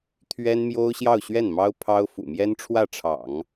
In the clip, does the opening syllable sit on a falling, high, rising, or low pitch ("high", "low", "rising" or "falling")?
high